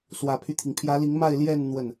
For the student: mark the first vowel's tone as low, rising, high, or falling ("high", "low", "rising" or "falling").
low